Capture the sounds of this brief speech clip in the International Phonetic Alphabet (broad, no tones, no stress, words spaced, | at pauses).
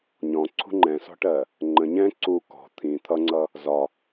ɲɔ̃ǀʰṳ ŋ͡ǃɛ̃sɔ̤ʈɜ | ŋ͡ǃə̃ ɲɛ̃ ǀu kɔ̤ t̪ʰĩ t̪ʰʌŋ͡ǀʌ | zɒ